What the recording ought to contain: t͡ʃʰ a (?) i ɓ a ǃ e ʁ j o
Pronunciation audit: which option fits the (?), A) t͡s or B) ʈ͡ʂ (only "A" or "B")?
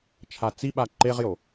A